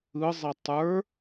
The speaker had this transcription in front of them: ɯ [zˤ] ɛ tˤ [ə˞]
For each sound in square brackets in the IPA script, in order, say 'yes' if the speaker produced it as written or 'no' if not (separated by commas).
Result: yes, yes